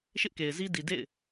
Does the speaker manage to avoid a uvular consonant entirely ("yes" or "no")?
yes